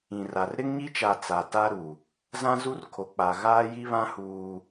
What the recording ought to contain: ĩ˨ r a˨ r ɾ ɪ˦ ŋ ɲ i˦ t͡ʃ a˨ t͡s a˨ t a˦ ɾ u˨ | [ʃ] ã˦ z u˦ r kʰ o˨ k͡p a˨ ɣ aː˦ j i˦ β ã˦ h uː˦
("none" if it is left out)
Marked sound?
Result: z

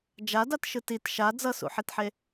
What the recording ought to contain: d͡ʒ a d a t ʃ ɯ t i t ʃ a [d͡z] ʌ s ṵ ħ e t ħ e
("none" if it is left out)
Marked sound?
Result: d͡z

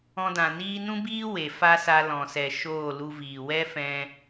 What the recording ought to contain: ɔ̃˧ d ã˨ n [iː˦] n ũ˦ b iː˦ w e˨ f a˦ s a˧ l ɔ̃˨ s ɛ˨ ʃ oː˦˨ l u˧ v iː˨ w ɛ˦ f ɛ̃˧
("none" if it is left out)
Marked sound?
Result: iː˦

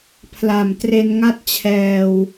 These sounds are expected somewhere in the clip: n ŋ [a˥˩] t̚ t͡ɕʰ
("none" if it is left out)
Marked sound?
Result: a˥˩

